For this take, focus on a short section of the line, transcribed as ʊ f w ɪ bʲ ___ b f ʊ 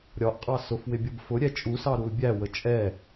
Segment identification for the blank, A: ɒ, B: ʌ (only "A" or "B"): B